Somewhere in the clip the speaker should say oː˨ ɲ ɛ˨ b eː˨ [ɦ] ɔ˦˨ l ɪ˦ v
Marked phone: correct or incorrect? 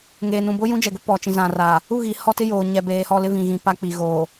incorrect